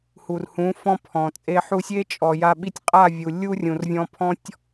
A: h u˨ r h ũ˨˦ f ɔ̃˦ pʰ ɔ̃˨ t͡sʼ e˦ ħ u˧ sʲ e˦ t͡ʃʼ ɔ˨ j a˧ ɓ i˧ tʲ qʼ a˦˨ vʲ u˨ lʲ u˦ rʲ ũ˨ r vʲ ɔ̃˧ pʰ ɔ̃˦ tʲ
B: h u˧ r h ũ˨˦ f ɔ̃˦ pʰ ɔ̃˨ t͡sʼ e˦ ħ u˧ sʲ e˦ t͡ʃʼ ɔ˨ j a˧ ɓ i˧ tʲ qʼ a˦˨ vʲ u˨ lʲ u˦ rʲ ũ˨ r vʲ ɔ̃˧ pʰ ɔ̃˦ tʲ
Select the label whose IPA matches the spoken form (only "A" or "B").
A